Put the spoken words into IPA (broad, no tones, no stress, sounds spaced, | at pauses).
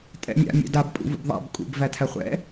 tʼ ɛ̰ mʲ a̰ mʲ ɛ̰ d a b pʼ ṵ v ṵ b ðˤ a̰ b kʼ ṵ b v æ tʰ æ χʷ ɛ̰